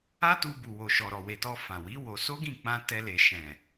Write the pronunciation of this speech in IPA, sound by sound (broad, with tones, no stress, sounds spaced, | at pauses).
a˦ t u˧ b u˨ w o˨ ʃ ɔ˨ ɾ ɔ˨ w e˨ t ɔ˧ f ã˨ w i˨˦ w o˧ s o˦ ɡ ĩ˦˨ k͡p ã˧ t ɛ˧ l e˨ ʃ ɛ̃˨